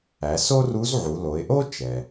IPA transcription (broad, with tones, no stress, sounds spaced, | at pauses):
æ˩˧ s o˥ r u˧˥ z ʕ u˩˧ l o˩˧ ɪ̯ ʔ o˥ t͡ʃ ɛ˩